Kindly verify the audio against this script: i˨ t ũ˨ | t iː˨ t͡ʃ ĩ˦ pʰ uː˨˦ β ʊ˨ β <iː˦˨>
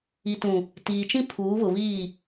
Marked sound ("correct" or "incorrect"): correct